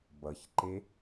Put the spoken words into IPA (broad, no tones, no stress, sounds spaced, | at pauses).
b ʌ ç ǃ e